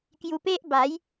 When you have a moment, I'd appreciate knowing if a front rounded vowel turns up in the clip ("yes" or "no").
no